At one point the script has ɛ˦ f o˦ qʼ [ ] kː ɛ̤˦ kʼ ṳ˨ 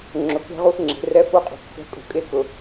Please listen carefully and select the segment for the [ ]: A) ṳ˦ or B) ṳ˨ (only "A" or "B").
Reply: B